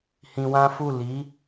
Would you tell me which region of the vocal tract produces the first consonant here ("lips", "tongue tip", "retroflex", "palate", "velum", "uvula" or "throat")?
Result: throat